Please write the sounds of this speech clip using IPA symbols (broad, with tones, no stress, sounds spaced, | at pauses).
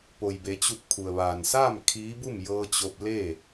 p o˩ j b e˩˧ t͡ɕ u˧˩ k̚ pʰ u˩ ə̯ ʋ aː˩ n s aː˥˨ m kʰ iː˧˥ b u˥˨ m j ɤː˧ t͡ɕ o˧ p̚ l e˥˨